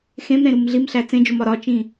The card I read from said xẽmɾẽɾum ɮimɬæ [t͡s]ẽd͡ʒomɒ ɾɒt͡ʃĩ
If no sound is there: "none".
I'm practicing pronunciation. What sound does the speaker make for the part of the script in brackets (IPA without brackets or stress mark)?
t͡s